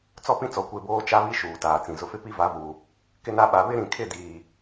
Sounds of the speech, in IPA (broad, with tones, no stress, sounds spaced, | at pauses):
t͡s ɔ˦ p ĩ˦ t͡s ɔ˨ kʷ e˦˨ b oː˦ t͡ʃ a˦ β i˦ ʃ uː˨ t aː˨ t͡s ĩ˨ z ʊ˨ f ɪ˦ p i˦ v a˨˦ v uː˨ | k ɪ˦ n a˦ ɓ a˨ β ɪ˦ ɾ ĩ˨ kʰ ɪ˦˨ d iː˨